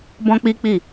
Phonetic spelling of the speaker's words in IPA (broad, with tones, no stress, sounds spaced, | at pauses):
b ɔ̃˦ k͡p i˦ k͡p i˦˨